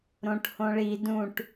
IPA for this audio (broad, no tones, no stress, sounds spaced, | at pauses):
ɾ õ ʈ h õ ɭ i d ũ ʈ